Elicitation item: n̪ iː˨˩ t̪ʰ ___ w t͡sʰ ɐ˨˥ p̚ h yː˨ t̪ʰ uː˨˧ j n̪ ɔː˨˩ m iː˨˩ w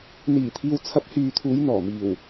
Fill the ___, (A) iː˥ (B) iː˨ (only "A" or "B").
B